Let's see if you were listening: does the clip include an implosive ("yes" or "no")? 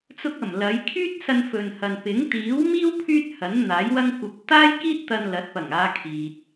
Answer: no